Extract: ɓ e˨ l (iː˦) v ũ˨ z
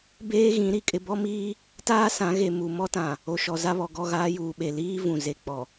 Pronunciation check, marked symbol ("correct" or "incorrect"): correct